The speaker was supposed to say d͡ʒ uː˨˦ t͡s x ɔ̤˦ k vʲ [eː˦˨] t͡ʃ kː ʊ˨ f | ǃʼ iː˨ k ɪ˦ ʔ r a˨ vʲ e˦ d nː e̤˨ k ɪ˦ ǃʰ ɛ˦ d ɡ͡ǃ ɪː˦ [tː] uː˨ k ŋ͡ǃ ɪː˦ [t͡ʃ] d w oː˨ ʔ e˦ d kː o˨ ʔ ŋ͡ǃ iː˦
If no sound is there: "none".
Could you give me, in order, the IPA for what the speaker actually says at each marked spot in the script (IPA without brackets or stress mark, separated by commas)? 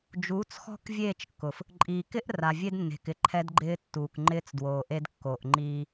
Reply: eː˦˨, tː, t͡s